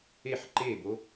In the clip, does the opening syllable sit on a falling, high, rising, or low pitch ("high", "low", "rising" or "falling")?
falling